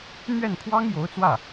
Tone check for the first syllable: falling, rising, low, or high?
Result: falling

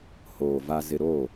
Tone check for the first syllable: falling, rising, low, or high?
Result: low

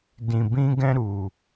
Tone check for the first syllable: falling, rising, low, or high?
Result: low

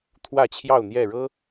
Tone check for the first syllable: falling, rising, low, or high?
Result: falling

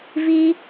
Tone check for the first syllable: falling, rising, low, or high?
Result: high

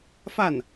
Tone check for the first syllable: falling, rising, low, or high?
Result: falling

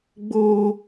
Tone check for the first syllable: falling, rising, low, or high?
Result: high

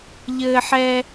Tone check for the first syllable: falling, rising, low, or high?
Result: high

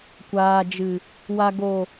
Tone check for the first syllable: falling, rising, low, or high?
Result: low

